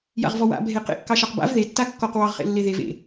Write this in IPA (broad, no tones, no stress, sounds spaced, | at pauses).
j a̰ ʁ v ɔ w a̰ bʱ e q ḛ kː ɑ ʃ ɑ q b a̰ v ð e tː a kː ɔ q w ɑ ʁ χ ḛ lː e ð e v ḛ